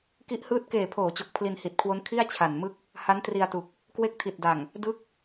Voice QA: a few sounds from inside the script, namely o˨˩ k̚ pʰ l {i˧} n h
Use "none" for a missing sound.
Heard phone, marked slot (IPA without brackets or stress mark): i˧